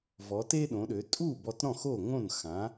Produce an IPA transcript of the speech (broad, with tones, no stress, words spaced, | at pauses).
vɔ˩˧te˦ɗõ˩˧ɗø˩˧ tʼu˥˩ bɔ˦t ɾɔ̃˥˩xo˥˩ŋõ˥˩n xã˨˥